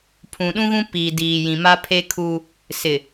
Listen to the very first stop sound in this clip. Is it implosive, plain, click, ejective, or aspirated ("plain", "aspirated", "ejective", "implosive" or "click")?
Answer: aspirated